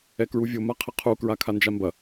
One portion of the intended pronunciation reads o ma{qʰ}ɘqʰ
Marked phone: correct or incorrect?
correct